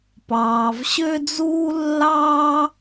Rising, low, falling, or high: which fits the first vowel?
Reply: low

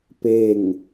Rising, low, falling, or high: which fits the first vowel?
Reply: falling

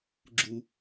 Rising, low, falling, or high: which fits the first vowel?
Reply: low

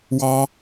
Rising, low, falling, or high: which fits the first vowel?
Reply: high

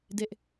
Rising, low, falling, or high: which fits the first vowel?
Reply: high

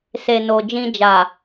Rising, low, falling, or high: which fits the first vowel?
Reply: low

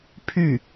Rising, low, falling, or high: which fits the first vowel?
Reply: falling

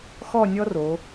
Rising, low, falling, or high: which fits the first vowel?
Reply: falling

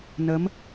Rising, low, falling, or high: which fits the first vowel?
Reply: rising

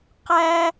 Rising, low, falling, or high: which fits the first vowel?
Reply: high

